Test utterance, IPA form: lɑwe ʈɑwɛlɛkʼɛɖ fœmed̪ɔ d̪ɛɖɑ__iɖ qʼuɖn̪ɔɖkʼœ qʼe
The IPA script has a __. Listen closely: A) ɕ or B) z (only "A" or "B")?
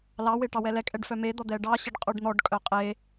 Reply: A